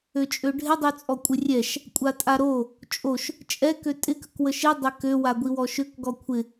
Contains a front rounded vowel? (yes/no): yes